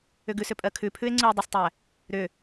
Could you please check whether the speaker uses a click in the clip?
yes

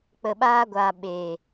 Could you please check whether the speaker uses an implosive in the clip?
yes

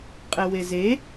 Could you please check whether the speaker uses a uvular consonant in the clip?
yes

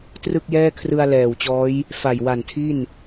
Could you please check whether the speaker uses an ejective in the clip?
no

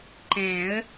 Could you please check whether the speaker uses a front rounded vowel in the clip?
no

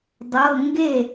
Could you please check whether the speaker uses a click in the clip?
no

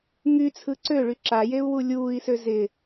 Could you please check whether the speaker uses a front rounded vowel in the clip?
yes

